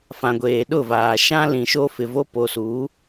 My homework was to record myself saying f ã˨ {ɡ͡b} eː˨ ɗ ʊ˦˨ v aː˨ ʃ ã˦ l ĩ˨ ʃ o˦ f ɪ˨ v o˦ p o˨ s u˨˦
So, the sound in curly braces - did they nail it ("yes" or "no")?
no